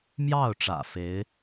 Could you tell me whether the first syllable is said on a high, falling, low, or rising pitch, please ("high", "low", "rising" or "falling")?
falling